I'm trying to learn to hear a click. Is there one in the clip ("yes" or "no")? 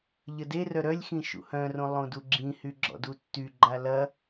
yes